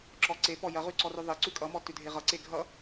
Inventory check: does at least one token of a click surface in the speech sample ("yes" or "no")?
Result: yes